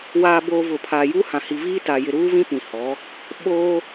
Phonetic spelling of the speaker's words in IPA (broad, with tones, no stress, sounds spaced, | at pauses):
w aː˨ b oː˨ v ʊ˨ pʰ a˨ j u˦ h ã˨ h i˨ v iː˦ t a˨ j ɪ˨ ɾ uː˦ v ĩ˦ p ĩ˨ h ɔ˨˦ | ɓ oː˦